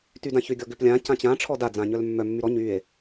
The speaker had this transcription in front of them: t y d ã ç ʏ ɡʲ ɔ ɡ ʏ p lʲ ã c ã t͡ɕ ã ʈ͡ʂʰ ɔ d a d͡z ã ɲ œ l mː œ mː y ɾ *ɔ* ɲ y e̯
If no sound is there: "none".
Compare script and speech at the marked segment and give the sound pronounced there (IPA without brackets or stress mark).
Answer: ɔ